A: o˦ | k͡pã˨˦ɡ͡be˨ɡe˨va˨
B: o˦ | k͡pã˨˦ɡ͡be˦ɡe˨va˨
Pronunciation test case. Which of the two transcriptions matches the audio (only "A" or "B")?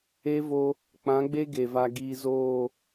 B